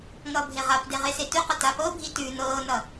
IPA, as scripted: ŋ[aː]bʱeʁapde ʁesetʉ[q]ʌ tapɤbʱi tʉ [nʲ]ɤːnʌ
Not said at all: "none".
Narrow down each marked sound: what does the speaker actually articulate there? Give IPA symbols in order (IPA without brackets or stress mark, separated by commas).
ʌː, q, n